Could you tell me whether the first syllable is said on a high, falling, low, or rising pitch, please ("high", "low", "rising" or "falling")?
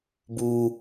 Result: high